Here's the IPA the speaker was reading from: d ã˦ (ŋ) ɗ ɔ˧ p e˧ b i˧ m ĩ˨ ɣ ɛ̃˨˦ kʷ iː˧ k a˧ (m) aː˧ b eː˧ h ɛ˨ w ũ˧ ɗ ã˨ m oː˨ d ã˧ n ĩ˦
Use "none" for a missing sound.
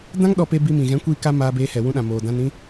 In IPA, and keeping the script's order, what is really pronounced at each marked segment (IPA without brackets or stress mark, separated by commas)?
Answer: ŋ, m